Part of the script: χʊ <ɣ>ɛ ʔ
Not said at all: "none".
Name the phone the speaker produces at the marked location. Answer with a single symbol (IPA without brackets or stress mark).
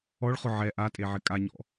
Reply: ʕ